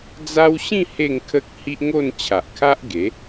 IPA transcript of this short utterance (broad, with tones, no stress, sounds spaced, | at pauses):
d͡z a˦ w ɕ ĩ˥˧ h e˥˧ ŋ kʰ ə˦ k̚ h i˦ ʔ ŋ o˥˧ n t͡ɕʰ a˨ ʔ kʰ a˦ ʔ ɡ e˨˦